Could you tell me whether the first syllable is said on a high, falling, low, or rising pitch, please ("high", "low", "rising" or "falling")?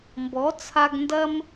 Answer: rising